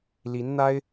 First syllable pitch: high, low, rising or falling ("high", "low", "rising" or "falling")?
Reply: rising